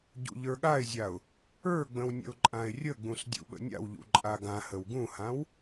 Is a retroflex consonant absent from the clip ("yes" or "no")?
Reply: yes